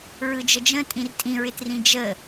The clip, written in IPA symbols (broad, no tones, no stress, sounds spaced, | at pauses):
ɹ ɯ d͡ʒ ə d͡ʒ ə̃ tʼ ĩ r tʼ ĩ ɹ ɪ t r ĩ d͡ʒ ə